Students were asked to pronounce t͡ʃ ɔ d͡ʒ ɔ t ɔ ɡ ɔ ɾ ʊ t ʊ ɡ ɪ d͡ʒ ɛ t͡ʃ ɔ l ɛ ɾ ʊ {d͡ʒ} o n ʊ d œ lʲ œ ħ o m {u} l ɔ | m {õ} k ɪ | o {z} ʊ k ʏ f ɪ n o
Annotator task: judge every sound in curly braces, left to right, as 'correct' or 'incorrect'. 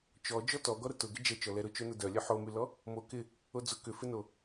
incorrect: t͡ʃ, incorrect: y, incorrect: o, incorrect: d͡z

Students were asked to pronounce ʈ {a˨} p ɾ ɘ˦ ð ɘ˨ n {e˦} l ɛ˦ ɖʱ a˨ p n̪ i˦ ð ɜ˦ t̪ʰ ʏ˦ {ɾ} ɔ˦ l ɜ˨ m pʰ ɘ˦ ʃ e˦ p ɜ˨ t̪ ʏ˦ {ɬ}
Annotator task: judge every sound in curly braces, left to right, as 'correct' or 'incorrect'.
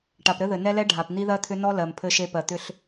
correct, incorrect: ɛ˦, incorrect: n, correct

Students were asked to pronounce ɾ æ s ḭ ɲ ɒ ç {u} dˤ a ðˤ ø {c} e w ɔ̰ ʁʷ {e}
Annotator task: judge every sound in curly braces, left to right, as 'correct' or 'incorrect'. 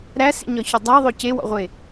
incorrect: ø, correct, correct

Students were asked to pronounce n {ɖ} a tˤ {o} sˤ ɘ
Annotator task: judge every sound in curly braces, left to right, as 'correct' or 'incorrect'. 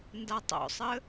incorrect: d, incorrect: o̰

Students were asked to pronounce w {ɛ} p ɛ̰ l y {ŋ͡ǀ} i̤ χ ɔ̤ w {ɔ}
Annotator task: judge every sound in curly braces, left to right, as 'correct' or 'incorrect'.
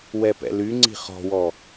correct, correct, correct

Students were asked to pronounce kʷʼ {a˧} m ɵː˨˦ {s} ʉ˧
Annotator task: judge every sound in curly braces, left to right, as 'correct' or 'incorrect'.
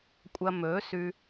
incorrect: ɐ˧, correct

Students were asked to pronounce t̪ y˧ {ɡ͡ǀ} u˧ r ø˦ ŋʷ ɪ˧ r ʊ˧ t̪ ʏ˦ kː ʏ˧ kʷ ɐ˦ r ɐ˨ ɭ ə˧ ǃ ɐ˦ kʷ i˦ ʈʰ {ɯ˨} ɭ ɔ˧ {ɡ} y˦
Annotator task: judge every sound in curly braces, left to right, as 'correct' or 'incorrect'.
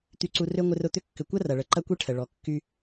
incorrect: ǀ, incorrect: ə˨, incorrect: kː

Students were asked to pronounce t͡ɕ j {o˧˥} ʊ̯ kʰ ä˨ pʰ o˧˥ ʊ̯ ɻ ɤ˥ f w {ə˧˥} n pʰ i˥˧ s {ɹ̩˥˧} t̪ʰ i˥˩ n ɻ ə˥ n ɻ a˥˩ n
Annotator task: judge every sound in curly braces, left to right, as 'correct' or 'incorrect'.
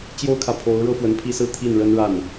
incorrect: o˥, correct, correct

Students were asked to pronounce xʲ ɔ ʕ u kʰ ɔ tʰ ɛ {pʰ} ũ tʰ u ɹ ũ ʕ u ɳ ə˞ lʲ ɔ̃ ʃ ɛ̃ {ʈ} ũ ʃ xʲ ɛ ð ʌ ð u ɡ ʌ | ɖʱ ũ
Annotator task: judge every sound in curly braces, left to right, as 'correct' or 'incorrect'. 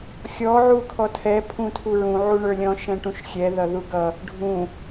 correct, correct

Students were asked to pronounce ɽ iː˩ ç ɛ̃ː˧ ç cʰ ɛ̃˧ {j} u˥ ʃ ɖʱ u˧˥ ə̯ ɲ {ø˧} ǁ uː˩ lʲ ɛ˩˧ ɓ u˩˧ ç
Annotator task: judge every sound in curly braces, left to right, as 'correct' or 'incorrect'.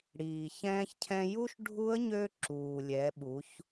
correct, correct

